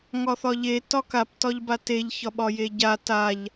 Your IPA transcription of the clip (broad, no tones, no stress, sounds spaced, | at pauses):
ŋ ɒ θ ɒ ʎ e t ɒ k a p t ɒ ʎ b a t e ʎ ç ɒ ɓ ɒ j e ɟ a t a ʎ